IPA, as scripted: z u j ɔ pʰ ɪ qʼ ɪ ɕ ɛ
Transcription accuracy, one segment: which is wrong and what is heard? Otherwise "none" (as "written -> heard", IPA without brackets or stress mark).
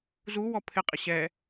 j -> w